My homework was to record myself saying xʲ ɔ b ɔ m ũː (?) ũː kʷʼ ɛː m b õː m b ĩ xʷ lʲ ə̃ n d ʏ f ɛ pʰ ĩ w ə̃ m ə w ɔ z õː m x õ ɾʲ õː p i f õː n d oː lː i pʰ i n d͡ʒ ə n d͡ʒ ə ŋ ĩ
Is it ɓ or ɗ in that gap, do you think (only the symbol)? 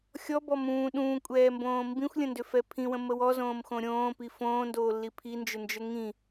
ɗ